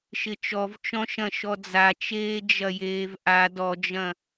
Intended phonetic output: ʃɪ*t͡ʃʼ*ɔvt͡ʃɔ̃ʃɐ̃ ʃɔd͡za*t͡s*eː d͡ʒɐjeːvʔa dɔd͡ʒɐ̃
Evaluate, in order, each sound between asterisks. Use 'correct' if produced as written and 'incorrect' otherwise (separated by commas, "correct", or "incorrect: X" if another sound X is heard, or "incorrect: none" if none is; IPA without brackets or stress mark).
incorrect: t͡ʃ, incorrect: t͡ʃ